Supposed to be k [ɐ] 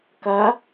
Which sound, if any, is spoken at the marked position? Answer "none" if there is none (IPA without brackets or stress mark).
ɐ